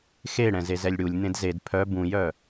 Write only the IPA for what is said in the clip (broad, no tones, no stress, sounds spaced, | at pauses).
x e ɽ ɛ̃ z e z ɛ lʲ ɽ u lʲ n̪ ẽ d z e d pʰ œ b ũ j œ